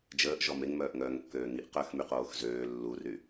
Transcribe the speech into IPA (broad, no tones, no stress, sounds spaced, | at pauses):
d͡ʒ əː ʔ ʒ ɔ m e ŋ m œː ʔ ŋ œː ŋ kː øː ŋ i ʔ q œ x m y q oː x z øː lː u r y